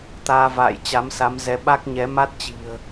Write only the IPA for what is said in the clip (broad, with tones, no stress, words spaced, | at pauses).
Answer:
t̪aː˧va̰ː˧˨j t͡ɕa˨˦msa˨˦mzɛ˨˦ ɓa˦˥k̚ɲɛ˨˦ ma˦˥t̚t͡ɕi̤˨˩ə̯